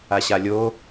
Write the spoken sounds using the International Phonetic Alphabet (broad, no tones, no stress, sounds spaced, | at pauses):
a ɕ a lʲ o